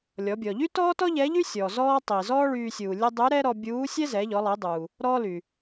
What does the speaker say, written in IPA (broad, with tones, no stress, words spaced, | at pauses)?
lʲɔ˩˧bʲɔ˩ ʎy˥tɔː˥tɔ˥ ʎɛ˧˥ʎy˥sʲɔː˩ zɔː˧tˤi˩ zɔː˥ɭyː˧ sʲuː˩lʲɛ˧ dˤy˧˥ɾɛ˥ɾɔ˧ bʲuː˧˥sʲɛ˥ zɛ˩˧ʎɔ˩˧lˠi˩˧dˤuː˩ | ɾɔ˥ly˩